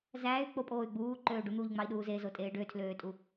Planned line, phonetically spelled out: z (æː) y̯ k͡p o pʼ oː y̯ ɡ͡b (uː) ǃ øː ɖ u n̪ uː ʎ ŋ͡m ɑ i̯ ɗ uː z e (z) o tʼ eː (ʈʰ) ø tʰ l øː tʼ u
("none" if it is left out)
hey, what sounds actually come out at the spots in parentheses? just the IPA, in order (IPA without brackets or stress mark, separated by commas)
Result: æː, uː, z, ɖ